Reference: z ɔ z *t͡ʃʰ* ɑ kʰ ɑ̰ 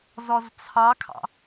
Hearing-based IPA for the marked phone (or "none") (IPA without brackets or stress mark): t͡sʰ